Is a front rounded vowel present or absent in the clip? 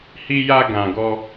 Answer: absent